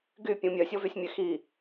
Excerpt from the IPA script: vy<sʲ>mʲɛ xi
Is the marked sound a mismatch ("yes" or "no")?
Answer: no